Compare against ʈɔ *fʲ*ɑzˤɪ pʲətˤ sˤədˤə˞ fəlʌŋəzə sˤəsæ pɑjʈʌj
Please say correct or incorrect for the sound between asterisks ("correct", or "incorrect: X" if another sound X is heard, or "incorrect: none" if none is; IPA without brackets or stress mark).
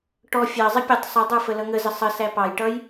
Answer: correct